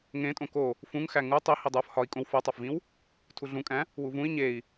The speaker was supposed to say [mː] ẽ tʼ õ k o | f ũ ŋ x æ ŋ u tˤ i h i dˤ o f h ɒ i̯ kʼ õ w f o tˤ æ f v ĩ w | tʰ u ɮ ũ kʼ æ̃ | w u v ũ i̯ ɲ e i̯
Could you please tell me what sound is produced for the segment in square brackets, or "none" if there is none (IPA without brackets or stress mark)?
ŋ